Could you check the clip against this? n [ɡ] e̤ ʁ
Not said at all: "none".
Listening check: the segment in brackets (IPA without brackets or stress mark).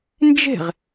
d͡ʒ